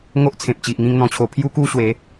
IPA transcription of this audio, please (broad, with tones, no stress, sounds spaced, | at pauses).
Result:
ŋ o˦ ʔ t͡sʰ ẽ˨ p̚ t͡ɕ i˨ ʔ ŋ ĩ˥˧ ŋ n̪ ɔ̃˧ t͡ɕʰ o˧ pʰ j u˦ k u˥˧ ɕ w e˨˦